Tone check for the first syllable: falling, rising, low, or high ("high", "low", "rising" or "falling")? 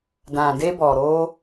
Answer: low